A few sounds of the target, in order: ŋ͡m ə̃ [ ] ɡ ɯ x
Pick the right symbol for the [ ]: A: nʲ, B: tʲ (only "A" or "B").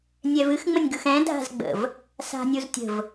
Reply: A